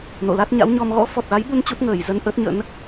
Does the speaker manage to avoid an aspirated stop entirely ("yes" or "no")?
yes